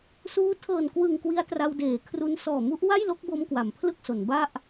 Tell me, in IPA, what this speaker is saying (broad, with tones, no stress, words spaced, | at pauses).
suː˧ tʰɤː˨˩n kwɯ˨˩ŋ kwi˦˥a̯tra˧wdeː˩˦kʰru˧n sɔː˨˩mu˦˥ʔ wa˥˩jlo˦˥k̚bo˧m kwa˩˦mpʰlɯ˥˩k̚so˩˦nba˥˩ʔ